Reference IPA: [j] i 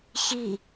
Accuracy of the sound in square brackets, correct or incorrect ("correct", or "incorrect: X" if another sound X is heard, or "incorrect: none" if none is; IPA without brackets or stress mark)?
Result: incorrect: ç